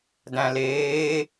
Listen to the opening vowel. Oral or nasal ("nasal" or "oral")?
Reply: nasal